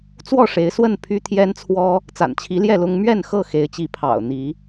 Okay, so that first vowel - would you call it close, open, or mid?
mid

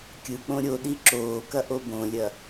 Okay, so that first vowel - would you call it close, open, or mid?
close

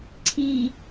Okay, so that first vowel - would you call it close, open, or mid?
close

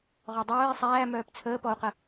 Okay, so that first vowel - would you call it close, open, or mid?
mid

